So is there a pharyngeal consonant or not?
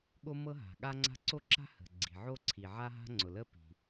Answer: yes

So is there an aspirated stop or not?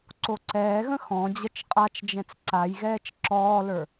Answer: no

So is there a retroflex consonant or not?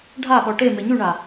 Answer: yes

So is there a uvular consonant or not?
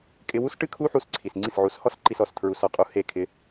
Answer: yes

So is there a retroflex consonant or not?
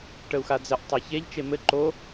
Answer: yes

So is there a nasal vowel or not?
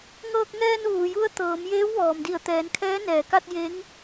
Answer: no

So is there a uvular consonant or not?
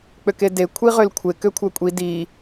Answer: yes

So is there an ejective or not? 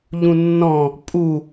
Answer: yes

